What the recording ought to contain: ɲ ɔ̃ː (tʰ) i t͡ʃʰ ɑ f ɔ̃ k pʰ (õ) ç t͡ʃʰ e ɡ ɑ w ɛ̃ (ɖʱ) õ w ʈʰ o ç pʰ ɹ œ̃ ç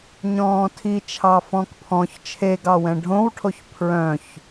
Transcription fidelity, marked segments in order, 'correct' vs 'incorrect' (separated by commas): correct, incorrect, correct